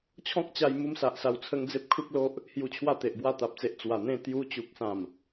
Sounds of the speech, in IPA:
t͡ɕʰɔ̃˦k̚t͡ɕa˧j mu˦msa˨ʔsa˧w t͡sʰə˦ŋ d͡ze˦p̚kʰu˦k̚lo˦ʔ | hju˧t͡ɕʰwa˥˧t̪e˨ʔbwa˥˧ t̪a˨p̚t͡se˨ʔ t͡swa˨˩n̪ẽ˥˧ t̪ju˦ t͡ɕu˨k̚sã˨˩m

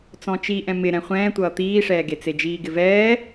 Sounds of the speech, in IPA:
t͡sɔ̃t͡ʃi ʔɛ̃mɪ ɾɛ̃χʷɛ̃ːtʷʌː t̪iːʂɛːɡe t͡sed͡ʒiːɡɪvɛː

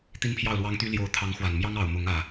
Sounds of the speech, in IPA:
t̪i˦npʰjɑ˥˨ʊ̯lwɑ˦ŋt̪y˦ ljo˨˦ʊ̯t̪ʰɑ˨˦ŋ xwa˨˩nmjɑ˦ŋɑ˨˩ʊ̯ mʊ˨˦ŋ ä˨˩

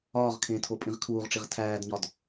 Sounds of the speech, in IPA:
ɒːʁkʰẽːtʰo pʼĩʁkʰuːʁʈ͡ʂiʁ tʰæːdɲɒd

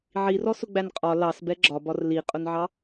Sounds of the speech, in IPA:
ʕirɔsʊɡ͡bæn qʼɒ lɑsbɛ ɡ͡ǁɒbɒr liqʼʊnʕɑ

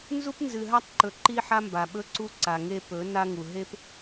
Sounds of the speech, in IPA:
nzu˦pnzɨ˨ɦa˦tˤǃɵ˨ ǃi˦ħa˦mba˨ɓɵ˦ ǀu˦ǀa˨ŋe˦ pɵ˨˦ na˦ŋu˨ ɦe˦p

